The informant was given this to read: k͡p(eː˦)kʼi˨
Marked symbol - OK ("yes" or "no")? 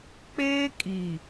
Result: yes